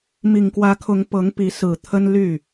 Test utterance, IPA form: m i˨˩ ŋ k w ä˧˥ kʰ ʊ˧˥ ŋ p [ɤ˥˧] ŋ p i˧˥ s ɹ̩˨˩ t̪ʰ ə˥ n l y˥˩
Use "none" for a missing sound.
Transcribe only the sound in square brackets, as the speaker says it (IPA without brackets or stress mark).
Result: ɤ˧˥